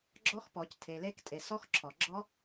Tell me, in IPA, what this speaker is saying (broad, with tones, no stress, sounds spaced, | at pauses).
ɡ͡ǁ ɔ˦˥ x p ɔ˨˩˦ c tʰ e˨ l e˦˥ k tʼ e˨ s ɔ˦˥ x ǁʰ ɔ˨ ɡ͡ǁ ɔ˦˥